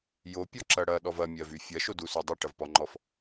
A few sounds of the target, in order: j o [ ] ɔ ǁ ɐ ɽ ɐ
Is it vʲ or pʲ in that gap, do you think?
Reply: pʲ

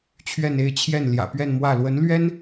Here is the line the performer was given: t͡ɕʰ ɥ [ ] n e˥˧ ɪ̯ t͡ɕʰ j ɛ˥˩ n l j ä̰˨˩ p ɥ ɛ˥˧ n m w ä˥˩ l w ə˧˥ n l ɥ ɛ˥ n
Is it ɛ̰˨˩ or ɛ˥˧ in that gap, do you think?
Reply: ɛ˥˧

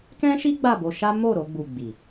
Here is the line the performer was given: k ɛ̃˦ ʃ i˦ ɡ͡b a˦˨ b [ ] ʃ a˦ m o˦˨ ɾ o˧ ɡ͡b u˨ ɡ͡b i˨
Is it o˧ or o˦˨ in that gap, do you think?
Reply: o˧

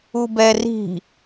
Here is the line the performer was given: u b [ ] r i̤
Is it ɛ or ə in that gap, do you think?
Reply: ɛ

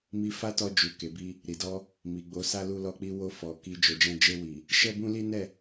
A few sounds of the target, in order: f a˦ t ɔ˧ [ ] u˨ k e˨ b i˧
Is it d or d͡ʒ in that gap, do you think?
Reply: d͡ʒ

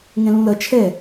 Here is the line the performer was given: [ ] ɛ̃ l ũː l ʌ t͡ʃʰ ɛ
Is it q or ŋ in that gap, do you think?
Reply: ŋ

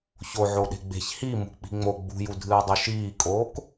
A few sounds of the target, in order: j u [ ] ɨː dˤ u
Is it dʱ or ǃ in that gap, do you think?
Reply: dʱ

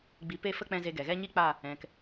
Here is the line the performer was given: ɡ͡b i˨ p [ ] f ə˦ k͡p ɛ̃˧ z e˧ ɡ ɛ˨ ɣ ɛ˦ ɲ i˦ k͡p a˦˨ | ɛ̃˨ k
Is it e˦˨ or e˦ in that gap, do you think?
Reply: e˦˨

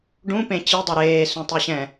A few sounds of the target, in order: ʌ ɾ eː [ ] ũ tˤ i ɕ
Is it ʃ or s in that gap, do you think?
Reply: s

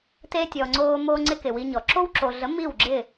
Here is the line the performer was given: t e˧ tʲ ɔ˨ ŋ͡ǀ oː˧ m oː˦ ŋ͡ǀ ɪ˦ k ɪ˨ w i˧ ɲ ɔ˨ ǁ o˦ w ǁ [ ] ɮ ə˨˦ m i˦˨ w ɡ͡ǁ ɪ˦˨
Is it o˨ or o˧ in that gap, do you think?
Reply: o˨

